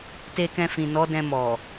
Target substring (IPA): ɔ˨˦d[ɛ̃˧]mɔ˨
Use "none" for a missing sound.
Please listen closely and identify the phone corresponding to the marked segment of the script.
ɛ̃˧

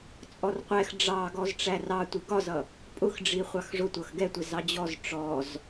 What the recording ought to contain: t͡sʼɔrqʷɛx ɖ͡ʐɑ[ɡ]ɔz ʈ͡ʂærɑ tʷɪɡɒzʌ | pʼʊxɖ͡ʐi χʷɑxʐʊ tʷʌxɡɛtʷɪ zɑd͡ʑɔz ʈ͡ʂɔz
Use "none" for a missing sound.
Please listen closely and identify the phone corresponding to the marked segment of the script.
ɡ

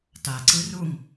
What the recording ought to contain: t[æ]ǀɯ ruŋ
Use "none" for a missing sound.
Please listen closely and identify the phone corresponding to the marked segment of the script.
a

